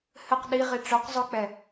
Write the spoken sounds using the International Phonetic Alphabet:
h ɘ q ɗ i ʁ i ʈ͡ʂ œ q zˤ ʊ k͡p ɛ

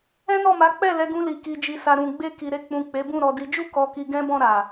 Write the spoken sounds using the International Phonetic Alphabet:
ɛ̃˦ n ɔ˦˨ m a˨˦ k͡p ɛ˦˨ l ɛ˨˦ ɡ ũ˧ l i˨ k i˨ d͡ʒ i˨ s a˨ ɾ ũ˨ ɡ͡b e˧ k i˨ ɾ e˧ k͡p ũ˨ k͡p e˨˦ b ũ˦˨ ɾ ɔ˧ d i˧ d͡ʒ u˦ k ɔ˧ k i˧ ɡ ɛ̃˦ b ɔ̃˦˨ ɾ a˨

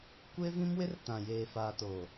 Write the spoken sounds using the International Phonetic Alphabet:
kʷ e˦ v ĩ˦ m w ɪ˦ r t ã˨ j eː˨ f aː˨ t o˨

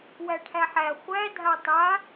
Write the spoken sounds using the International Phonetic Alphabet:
w æ ʈʰ æ ħ æ χʷ æ dʱ a tˤ a

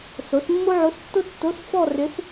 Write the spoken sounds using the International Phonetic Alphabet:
s o˩˥ s mː o˥ ʕ o˧˥ s tː o˥ tː o˧˥˧ s f ɔ˥˧ r ʏ˧˥ s

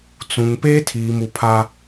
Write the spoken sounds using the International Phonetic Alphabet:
t͡s ũ˨ ŋ p eː˦ tʰ iː˨ m u˨ pʰ a˦

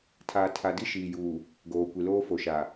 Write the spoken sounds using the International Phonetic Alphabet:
tʰ aː˨ tʰ a˨ d i˦ ʃ iː˨ j uː˨ | ɡ oː˨ kʷ i˨ l oː˦ f o˨ ʃ a˨

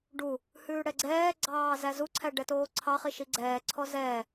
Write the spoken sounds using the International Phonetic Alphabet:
ɖ u | h ʉː ɽ ɛ ɡ͡ǀ ɛː ɡ͡ǀ ɑː z æ z u ǀʰ æ ɖ ɛ t oː ǀʰ ɑ χ i ʃ i ɡ͡ǀ ɛː ǀʰ ɔ z ɛː

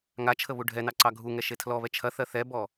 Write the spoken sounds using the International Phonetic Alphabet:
ŋ a t͡ʃʰ ə β u ɖʱ ɛ n ɑ ǀ ɑ ɡʱ u ŋ ɛ ʃ e tʰ l ɔ β ɛ t͡ʃʰ ɐ θ ɜ θ ɛ b ɔ

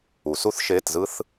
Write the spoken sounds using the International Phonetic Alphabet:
u˨˩˦ s u˥ θ ʃ eː˧˥˧ t z ɯ˥ θ

